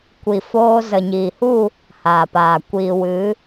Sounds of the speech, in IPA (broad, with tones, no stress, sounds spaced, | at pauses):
kʷ i˨ f oː˧ z ə˨ ɲ iː˨ h u˦˨ | h aː˨ p aː˨ kʷ iː˨ w ɨ˨˦